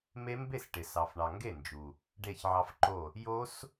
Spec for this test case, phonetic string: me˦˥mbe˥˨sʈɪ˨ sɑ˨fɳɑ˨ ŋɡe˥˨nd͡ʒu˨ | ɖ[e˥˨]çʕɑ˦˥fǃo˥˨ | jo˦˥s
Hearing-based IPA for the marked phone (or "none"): e˥˨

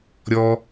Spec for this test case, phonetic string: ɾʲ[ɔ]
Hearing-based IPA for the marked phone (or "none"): ɔ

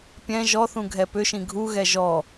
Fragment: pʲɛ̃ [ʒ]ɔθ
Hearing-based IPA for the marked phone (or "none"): ʒ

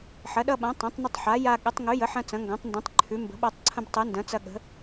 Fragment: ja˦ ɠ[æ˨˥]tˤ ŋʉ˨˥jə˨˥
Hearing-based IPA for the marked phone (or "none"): ə˨˥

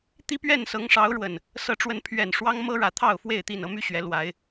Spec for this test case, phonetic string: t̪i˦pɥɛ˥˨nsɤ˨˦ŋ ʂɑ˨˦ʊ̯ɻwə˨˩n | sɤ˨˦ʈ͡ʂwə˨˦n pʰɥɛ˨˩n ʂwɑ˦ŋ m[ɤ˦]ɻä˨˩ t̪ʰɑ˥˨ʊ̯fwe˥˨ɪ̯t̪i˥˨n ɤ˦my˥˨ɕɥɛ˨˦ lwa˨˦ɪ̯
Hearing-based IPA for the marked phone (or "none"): ɤ˦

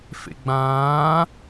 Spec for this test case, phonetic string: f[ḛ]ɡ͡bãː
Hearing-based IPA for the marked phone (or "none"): ḛ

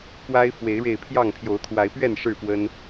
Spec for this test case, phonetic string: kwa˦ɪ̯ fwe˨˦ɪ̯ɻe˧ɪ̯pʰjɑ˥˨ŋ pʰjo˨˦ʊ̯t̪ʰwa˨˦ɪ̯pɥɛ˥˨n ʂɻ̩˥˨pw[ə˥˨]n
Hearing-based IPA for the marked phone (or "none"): ə˦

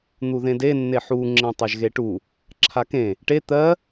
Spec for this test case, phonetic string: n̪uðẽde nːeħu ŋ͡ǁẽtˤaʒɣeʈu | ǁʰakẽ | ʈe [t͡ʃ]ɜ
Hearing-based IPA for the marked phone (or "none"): t̪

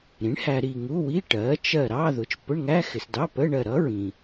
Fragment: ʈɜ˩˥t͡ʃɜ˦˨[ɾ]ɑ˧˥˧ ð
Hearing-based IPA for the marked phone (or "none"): ɾ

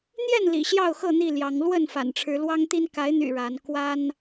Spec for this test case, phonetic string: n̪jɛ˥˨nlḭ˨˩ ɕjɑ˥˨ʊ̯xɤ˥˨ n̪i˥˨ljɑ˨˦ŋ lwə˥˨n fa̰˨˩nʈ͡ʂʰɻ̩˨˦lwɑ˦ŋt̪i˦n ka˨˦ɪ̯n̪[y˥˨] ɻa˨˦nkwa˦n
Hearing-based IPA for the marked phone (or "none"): y̰˨˩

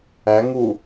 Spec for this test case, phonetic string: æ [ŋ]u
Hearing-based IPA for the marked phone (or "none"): ŋ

